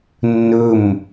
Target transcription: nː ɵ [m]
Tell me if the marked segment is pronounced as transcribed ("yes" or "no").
yes